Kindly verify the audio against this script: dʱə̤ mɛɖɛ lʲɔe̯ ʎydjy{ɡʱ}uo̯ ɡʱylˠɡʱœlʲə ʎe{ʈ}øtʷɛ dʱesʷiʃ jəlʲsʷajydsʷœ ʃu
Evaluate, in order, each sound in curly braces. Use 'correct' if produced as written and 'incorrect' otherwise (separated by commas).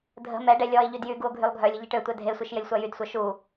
incorrect, correct